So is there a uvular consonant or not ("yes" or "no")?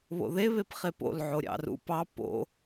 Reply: yes